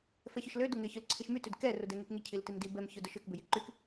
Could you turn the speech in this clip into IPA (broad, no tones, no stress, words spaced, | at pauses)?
fɛçʏʃlø dʊŋɪ çʊlǀʰiʃmy tʏdkɛ rʊdɛŋykŋi cʰiltimdi bɛm çʊdʊʃʏk bʏjiǃyk